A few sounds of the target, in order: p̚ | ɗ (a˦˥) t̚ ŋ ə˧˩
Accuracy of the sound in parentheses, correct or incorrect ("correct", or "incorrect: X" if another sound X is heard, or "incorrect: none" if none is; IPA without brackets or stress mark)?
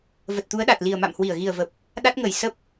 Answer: correct